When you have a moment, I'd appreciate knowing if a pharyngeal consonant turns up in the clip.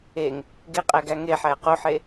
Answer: yes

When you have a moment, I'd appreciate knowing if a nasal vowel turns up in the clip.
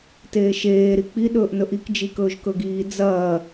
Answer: no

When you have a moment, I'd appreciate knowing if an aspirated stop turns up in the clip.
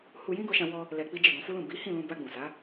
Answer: no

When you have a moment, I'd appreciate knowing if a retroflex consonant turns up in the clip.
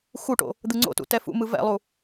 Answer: yes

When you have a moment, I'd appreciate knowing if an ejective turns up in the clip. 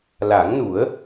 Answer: no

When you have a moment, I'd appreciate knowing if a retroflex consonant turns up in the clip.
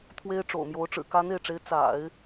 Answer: yes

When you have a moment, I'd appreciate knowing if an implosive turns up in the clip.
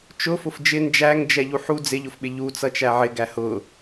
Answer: yes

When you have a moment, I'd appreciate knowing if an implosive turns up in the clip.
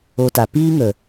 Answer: no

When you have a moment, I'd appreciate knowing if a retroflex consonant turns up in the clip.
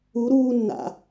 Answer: no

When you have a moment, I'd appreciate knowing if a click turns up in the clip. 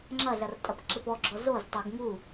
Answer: yes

